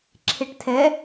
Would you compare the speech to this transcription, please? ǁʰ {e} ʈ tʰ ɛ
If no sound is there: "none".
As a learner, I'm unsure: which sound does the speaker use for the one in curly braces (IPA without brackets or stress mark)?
e